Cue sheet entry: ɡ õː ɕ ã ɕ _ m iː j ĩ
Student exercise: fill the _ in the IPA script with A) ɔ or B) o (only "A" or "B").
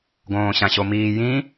B